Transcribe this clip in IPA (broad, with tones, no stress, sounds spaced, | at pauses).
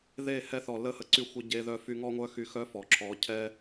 ð e˦˨ h ɛ˧ θ ɔ˨ l ə˦˨ h ə˧ ǀ y˧ xʷ ə˧ ɟ e˧ ð œ˧ f y˧ ŋ ɔ˦ ŋʷ œ˦ x y˧ x œ˦ f ɔ˨ ǁʰ ɔ˨˦ cʰ ɛ˦